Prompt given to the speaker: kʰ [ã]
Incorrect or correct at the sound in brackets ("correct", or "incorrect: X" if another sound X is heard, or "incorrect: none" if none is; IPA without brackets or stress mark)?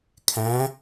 incorrect: æ̃